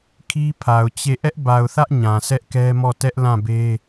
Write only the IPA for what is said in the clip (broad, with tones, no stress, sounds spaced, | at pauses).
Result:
kʰ i˦ pʰ a˨ ʊ̯ t͡ɕ e˦˨ ʔ ɛ˦ ʔ b a˨ ʊ̯ θ ä˦ ʔ ɲ ã˨ sʰ ɛ˦ ʔ k ɛ˦ m ɔ˦˨ t ɛ˦ ʔ l ã˦˨ b e˦